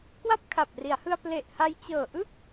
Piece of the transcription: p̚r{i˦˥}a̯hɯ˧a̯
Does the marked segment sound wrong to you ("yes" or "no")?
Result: yes